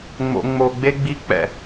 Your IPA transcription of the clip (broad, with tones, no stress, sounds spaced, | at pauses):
ŋ͡m o̰˨ ŋ͡m o˨ ɡ͡b e˧ ɡ͡b i˧ k͡p ɛ̰˨